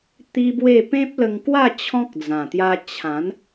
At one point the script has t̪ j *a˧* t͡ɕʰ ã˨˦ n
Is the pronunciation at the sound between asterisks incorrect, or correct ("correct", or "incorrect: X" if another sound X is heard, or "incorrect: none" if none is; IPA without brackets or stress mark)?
correct